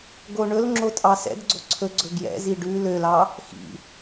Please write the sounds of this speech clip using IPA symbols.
ɡ o ɳ ɵ l ŋ͡ǁ o tʼ ɑ s ɛ̰ d ɡ͡ǀ o ǀʰ ɵ ɡ͡ǀ ɵ ɡ j ɛ̰ z i ɖ ʉ l ø l ɑ | x ḭ

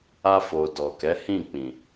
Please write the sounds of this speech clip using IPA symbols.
a˧ f o˨ d ɔ˨ k ɛ˨˦ h ĩ˦˨ k͡p ĩ˨

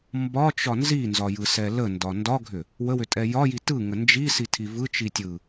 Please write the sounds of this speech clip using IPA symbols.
m b ɒ t͡ʃ ɒ n z i n z ɒ j ɯ s ɛ l ə n d ɒ n d ɒ ɡʱ ʏ | w ə w ʏ tʼ ɛ j ɒ j i t ɯ ŋ ə n d͡ʒ i s i tʰ i v ɯ t͡ʃ i tʲ ɯ

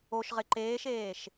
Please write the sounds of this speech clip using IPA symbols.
o ʃ ʁ ɪ ǃ eː ʃ eː ʃ

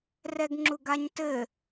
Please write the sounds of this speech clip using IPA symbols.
r ɛ ɡ ŋ͡ǁ u ɡ a ɲ t ɘ

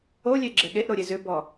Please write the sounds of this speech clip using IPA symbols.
o lʲ e ɡ͡ǁ ɛ ɠ e ʔ ɾ o ɾʲ e z ʏ b ɔ

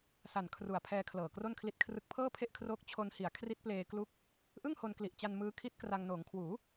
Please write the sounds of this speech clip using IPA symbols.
s a˨˩ n kʰ r u˨˩ a̯ pʰ ɛː˧ kʰ l ɤː˨˩ k r o˥˩ n kʰ l i˦˥ t̚ kʰ r ɯ˦˥ k̚ pʰ ɤː˥˩ pʰ e˥˩ ʔ kʰ r oː˦˥ k̚ t͡ɕʰ o˧ n h i˨˩ a̯ kʰ r i˦˥ t̚ p l eː˧ k l u˦˥ k̚ | ʔ ɯ˥˩ ŋ h o˧ n k l i˨˩ ʔ t͡ɕ a˧ n m ɯː˦˥ kʰ i˦˥ t̚ k r a˧ ŋ n oː˩˦ ŋ kʰ w uː˩˦

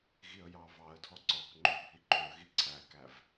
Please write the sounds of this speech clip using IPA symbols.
ɣ i ə̯ j ɑ v ɑ ə̯ dʱ ɔ ǀ ɔ k ŋ͡ǃ ø bʱ i ǃ ø ə̯ ɣ i ǀʰ æ k æ v

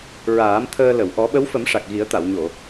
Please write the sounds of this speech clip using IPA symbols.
ɹ aː˨˩˦ m t̪ʰ əː˧ l ə˨˩˨ w ʔ ɔ˨˩˦ ɓ ə˧˥ w f ə˨˩˦ m ʂ a˨˩ k̚ ɣ i˨˩˦ ə̯ t̪ a˨˩˨ w ɲ o˨˩˨

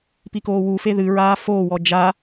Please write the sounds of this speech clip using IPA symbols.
p i k oː w u f e ð ɨ ɹ aː f oː w ɔ d͡ʒ a

